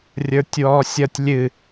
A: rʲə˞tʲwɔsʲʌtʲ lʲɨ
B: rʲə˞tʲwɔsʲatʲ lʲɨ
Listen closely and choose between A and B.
A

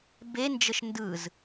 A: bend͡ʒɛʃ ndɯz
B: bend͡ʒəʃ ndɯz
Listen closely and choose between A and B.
B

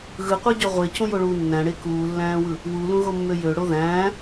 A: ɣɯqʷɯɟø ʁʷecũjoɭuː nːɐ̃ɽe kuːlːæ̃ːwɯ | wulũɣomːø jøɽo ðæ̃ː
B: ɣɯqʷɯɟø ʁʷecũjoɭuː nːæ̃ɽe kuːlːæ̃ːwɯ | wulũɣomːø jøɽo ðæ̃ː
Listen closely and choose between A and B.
B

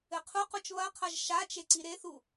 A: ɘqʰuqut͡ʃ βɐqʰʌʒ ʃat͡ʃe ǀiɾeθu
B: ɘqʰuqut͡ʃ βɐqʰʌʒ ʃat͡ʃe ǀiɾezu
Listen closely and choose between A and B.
A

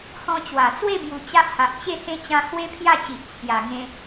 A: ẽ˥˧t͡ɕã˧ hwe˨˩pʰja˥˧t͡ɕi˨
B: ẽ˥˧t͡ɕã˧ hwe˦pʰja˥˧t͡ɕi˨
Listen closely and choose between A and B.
B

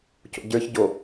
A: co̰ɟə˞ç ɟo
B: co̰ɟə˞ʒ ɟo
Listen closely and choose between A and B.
A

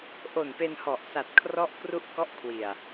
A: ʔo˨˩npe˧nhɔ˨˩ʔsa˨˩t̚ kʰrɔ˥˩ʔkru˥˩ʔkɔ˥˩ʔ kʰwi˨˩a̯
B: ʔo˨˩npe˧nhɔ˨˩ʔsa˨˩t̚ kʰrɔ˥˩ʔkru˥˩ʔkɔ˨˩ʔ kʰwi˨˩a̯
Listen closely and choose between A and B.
A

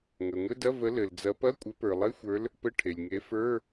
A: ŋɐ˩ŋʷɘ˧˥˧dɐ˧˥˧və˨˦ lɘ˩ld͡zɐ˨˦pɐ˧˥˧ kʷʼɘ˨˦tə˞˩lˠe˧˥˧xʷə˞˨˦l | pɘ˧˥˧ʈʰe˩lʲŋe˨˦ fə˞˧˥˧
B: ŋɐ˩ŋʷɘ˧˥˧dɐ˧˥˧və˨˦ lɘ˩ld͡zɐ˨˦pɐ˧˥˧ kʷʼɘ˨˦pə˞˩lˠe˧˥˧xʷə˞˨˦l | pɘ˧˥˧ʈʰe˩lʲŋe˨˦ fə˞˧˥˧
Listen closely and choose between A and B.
B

